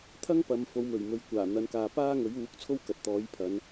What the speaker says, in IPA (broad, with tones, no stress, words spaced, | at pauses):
t̪ʰɐ˥ŋpɐ˨m fo˨˧wmɵ˨˩ɥmɵ˨ɥ kʷaː˨˩n̪ɐ˨˧nkaː˨ paː˥ŋɵ˨˥ɥuː˨˥k̚t͡sʰo˥w kɐ˨t̚t̪ɔː˨˥jpʰɐ˨˧n